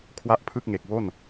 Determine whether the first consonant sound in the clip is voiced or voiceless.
voiceless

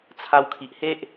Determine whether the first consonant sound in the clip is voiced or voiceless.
voiceless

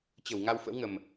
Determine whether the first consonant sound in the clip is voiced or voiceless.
voiceless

